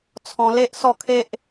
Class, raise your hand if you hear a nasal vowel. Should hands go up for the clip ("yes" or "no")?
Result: yes